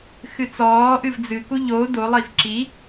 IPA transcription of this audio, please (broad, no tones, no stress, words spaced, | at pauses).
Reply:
xɨt͡sɔː ʔɨvd͡zɨku ʎo dolˠiv ǁi